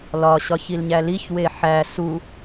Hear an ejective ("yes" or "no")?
no